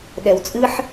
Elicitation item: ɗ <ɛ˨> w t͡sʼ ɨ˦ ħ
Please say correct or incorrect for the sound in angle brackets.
correct